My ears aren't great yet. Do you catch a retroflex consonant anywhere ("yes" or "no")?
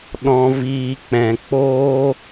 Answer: no